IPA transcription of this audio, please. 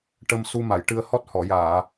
ʈ ə˧ m s u˧ m a˨˩˨ j ʈ ɨ˧ ə̯ h ɔ˦˥ t̚ h ɔ˨˩˨ j aː˨˩˨

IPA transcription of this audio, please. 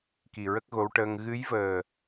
k i˨˩ ɹ ə˦˥ k̚ ɣ o˧˥ w ʈ əː˧ ŋ ɣ ɨ˧˥ j v əː˨˩

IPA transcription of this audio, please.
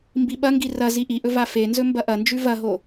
m b i ɓ ɐ ŋ ɡ i r ɐ z i ʔ i ʔ ɵ v a f e n z ɵ m b ɐ ʔ ɐ n d͡ʒ ʉ v ɐ ɦ o

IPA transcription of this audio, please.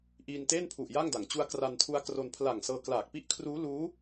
ʔ iː˧ n t eː˥˩ n pʰ u˨˩ ʔ j a˥˩ ŋ d a˩˦ ŋ t͡ɕ u˦˥ a̯ k r a˧ n tʰ u˦˥ a̯ k r o˧ n pʰ l a˨˩ ŋ s ɤː˧ k l aː˨˩ k̚ p i˥˩ ʔ kʰ r uː˦˥ l uː˦˥

